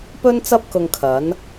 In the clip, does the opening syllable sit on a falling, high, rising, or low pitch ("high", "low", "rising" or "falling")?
high